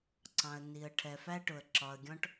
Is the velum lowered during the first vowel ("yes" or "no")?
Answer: yes